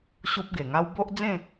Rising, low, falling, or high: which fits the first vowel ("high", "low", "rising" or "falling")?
high